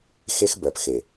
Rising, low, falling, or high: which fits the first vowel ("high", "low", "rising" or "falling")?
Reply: high